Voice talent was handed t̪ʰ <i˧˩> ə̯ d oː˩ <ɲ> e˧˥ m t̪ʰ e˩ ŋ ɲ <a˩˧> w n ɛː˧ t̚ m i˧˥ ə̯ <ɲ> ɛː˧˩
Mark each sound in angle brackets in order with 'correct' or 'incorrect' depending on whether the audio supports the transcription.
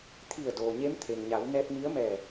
correct, correct, correct, incorrect

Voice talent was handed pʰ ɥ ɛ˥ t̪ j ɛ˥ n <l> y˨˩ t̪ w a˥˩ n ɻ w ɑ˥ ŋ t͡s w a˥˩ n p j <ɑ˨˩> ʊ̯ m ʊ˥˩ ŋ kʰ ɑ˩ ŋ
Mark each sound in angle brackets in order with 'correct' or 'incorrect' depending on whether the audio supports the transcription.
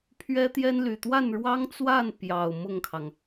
correct, correct

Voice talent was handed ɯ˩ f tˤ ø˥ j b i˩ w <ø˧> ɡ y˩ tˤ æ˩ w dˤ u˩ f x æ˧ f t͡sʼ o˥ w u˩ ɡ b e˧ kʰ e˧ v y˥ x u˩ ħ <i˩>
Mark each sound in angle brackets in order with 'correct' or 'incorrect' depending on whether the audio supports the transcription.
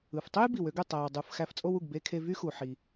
correct, correct

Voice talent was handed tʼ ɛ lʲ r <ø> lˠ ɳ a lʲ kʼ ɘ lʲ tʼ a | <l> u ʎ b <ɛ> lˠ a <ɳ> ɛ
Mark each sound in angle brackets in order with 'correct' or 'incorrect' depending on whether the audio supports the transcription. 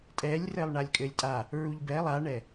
incorrect, incorrect, correct, correct

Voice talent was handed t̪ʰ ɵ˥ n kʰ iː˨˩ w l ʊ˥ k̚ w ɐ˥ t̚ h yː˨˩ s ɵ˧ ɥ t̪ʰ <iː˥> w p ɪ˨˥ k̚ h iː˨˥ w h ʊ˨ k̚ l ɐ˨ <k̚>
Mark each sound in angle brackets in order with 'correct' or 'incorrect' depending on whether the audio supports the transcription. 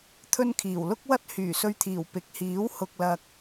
incorrect, correct

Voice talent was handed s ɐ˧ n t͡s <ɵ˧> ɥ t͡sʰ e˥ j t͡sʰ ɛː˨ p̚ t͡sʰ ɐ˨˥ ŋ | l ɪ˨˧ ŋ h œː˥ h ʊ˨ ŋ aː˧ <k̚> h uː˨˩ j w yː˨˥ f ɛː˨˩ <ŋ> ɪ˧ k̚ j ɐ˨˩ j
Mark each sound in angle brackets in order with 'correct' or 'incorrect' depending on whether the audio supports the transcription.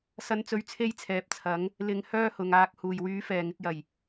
correct, correct, correct

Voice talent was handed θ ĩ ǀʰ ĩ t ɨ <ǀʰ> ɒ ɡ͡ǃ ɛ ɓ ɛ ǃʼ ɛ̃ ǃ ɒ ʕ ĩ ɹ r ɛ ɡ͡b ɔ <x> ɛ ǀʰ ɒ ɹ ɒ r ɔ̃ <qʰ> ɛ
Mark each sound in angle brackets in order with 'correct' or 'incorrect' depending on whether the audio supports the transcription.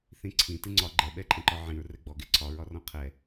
incorrect, incorrect, correct

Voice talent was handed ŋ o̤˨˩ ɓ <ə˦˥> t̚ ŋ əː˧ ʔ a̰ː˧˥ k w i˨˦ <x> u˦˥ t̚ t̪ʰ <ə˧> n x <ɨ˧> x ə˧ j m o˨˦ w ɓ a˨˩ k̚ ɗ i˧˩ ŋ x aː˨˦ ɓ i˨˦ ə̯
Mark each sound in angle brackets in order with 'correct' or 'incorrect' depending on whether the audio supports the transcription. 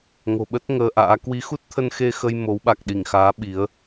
correct, correct, correct, incorrect

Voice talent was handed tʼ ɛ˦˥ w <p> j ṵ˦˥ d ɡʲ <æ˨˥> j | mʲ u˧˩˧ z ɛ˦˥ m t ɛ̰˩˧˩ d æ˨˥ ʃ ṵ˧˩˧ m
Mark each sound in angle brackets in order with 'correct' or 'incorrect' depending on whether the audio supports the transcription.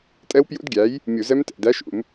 correct, correct

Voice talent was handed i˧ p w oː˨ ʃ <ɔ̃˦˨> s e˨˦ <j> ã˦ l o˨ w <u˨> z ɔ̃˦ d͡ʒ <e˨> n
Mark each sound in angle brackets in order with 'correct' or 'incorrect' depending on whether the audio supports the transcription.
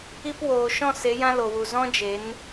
correct, correct, correct, incorrect

